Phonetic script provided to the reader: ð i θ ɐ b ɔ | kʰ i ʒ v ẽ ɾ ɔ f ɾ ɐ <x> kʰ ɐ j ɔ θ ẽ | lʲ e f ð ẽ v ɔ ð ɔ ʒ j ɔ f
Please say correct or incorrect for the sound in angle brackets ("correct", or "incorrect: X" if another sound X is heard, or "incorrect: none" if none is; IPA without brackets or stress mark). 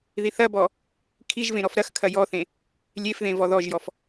correct